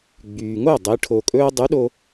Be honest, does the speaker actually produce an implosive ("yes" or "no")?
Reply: yes